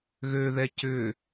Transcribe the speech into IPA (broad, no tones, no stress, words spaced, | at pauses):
ɣøðɛ cʏ